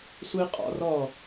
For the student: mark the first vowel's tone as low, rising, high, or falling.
high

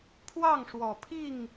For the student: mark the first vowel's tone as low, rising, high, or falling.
falling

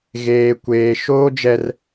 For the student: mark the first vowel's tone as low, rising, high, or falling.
high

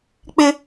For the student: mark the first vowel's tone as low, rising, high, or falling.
high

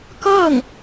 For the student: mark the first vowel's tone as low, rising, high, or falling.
falling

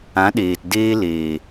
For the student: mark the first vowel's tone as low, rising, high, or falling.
rising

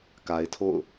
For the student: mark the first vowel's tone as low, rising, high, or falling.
low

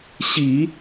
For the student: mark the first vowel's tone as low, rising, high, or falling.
low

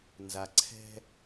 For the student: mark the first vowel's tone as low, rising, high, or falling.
low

